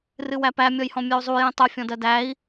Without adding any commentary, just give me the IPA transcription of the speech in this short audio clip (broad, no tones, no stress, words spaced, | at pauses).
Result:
rɨwæpæ mʲɔjhɔ̃mʲœu̯zˤu jĩtˤœ fʲɔ̃dɜdæi̯